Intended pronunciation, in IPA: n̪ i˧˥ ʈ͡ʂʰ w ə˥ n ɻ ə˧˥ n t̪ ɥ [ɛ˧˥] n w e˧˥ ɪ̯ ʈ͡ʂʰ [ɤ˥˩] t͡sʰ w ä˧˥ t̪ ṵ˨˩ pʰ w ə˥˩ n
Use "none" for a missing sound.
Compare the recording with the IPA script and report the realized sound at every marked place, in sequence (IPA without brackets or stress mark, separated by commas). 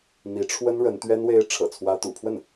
ɛ˥, ɤ̰˨˩